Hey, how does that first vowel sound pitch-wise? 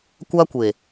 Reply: high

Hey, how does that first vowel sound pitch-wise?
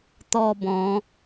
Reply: falling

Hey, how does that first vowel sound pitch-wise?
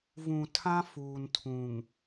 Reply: low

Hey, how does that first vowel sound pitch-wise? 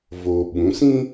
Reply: low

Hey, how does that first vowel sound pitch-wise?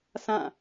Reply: falling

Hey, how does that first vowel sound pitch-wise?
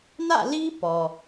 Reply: falling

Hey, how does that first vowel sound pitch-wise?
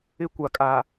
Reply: high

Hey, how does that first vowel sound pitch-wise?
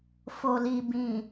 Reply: low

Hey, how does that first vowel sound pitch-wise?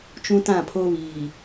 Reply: high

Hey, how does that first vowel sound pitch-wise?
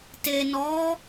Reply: low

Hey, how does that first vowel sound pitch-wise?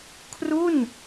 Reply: falling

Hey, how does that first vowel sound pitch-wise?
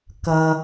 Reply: low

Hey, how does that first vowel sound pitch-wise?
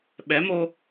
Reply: rising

